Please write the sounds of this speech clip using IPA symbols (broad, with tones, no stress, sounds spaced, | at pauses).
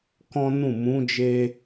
k ɔ̃˦ n ũ˦˨ m ũ˨˦ d͡ʒ e˧